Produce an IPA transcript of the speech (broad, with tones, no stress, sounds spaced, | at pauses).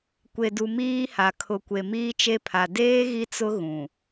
kʷ e˨ d u˨ m iː˦ h a˨ kʰ ʊ˨ kʷ e˨ m iː˦ t͡ʃ e˦ pʰ a˨ d eː˦ ɣ i˦ t͡s ʊ˦ ɣ ũ˨